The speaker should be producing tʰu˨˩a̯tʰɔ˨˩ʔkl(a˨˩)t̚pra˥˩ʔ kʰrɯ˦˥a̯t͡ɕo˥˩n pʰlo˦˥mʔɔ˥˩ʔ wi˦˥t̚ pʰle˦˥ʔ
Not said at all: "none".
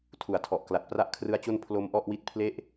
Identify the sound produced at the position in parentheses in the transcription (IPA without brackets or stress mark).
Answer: a˨˩